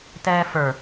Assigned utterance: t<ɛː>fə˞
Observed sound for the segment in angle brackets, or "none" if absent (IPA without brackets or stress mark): ɛː